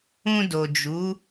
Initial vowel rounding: rounded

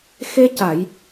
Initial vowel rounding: unrounded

